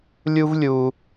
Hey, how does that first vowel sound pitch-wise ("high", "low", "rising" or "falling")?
high